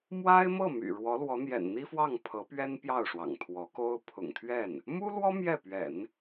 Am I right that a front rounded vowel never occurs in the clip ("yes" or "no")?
no